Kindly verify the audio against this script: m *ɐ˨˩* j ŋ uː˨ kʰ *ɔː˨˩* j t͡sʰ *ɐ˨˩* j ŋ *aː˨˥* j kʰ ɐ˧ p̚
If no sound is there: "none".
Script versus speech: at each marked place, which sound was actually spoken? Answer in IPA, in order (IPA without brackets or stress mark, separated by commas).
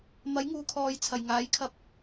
ɐ˨˥, ɔː˨, ɐ˨˩, aː˨˥